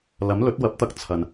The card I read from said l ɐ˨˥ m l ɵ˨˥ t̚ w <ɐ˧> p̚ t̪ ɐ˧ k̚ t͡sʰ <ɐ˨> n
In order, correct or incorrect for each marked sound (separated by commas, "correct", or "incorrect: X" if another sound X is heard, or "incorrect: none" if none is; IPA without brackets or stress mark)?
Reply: incorrect: ɐ˨˥, correct